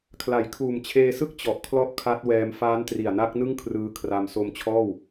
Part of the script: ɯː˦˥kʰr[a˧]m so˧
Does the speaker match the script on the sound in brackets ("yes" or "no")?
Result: yes